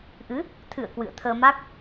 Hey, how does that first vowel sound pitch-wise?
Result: rising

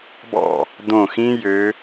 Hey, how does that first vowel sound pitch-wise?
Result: falling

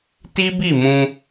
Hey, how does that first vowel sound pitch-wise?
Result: high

